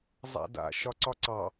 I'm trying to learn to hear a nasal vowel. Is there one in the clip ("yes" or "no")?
no